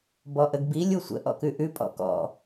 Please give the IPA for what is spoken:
b ɔ ʔ ə ɡ b i lʲ u sʷ ə̰ ʔ ɔ̰ k ʉ ʔ ʉ pʼ ɔ̰ k ɔ̰

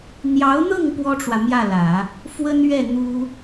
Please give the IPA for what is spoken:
n̪ j ɑ˧˥ ʊ̯ n̪ ɤ˥˩ ŋ p w ɔ˥ ʈ͡ʂ w ä˨ m j ä˥˩ l ä˨˩˦ | f w ə˥ n ɥ ɛ˥˩ n̪ u˥

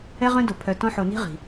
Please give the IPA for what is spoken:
ɛ˦ ʁ œ̃˦ d o˨ pʰ œ˨ t ɔ̃˦ ħ o˨ n i̤˦ ʁ i̤˨

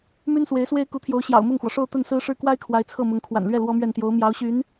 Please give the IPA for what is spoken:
m y˥ n s w e˧˥ ɪ̯ s w e˥ ɪ̯ k u˧˥ t̪ʰ j o˧˥ ʊ̯ ɕ j ɑ̰˨˩ ʊ̯ m ʊ˥˩ ŋ x w ɔ˩ ʂ o˥˧ ʊ̯ t̪ ə˥˩ n s ɹ̩˥ ʂ ɻ̩˥˩ k w a˥ ɪ̯ kʰ w a˧˥ ɪ̯ t͡sʰ ɤ˥˩ m ʊ˧˥ ŋ kʰ w a̰˨˩ n l ɥ ɛ˥˩ l w ɔ˥ m ɥ ɛ˥˩ n t̪ j o˧˥ ʊ̯ m j ɑ˧˥ ʊ̯ ɕ y˧˥ n

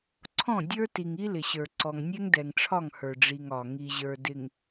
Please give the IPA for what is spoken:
ǀʰ ɔ̃˦˨ dʲ ə˞˦ t i˨ ŋ i˦ l ɪ˨ ɕ ə˞˨ ǀ ɔ˨ ŋ nʲ ɛ˦ ŋ d ɛ˨ ŋ ʈ͡ʂʰ ɒ˦˨ ŋ h ə˞˨ ɖ͡ʐ i˨ ŋ ɒ˨ ŋ i˨ ʑ ə˞˨ d ɪ˨ ŋ

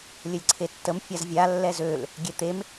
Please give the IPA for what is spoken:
lʲ ə lʲ ǀʰ e tː ə m fʲ a z vʲ a lː ɛ z ø l | ɡʲ ɛ t̪ e m

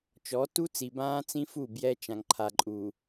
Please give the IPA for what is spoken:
t͡ʃ ɔ˨˦ t u˦ t͡s i˨ b ãː˦ t͡s ĩ˦ f u˦˨ b j ɛ˦ t͡ʃ ã˨ ŋ ǃʰ a˨ ǃʼ u˨

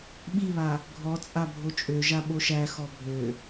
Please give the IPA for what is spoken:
ɓ i β a | ɡʱ ɔ t͡sʼ a bʱ o t͡ʃʼ ø ʒ a ɓ o ʃ æ x ɔ bʱ ø

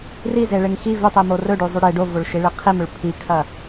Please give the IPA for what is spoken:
r i z e ɭ e ŋ x i v ʉ tˤ i m o r ɵ ɖ ʉ zˤ ʉ ɽ e ɖ o v o ɭ ʃ i ɭ e qʰ e m ɵ ɭ pʰ i kʰ ɐ

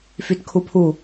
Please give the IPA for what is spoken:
f y t kʰ u pʰ u

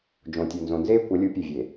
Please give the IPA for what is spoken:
d͡ʒ õ˨ tʲ o˨ n z õ˨ n z eː˦ kʷ ɐ˨˦ lʲ u˨˦ pʲ e˨ vʲ eː˨

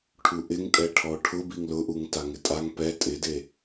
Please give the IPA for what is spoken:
ʈʰ u ʔ ɪ ŋ tʼ ɛ ʈʰ ɔ ʈʰ ʊ b i ŋ l ʊ ʔ u ŋ t a ŋ ɪ tʼ a ŋ p ɛ tʼ ɪ d e

